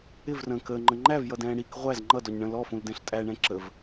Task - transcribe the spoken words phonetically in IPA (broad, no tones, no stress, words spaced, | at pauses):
ɪvrə̃ː kəːŋ͡ǃə̃ ŋ͡ǃævjʌdɛ̃ː ɽik ʁʷæz ŋ͡ǃʌdɔɲ ɳə̃ lɔfũldɛ̃ɬ tʼæɳɛ̃ ǁəv